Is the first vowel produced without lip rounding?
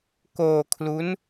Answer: no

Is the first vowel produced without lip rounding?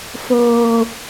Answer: no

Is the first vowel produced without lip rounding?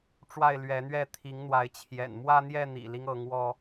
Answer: yes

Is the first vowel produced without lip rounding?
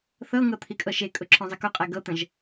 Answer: yes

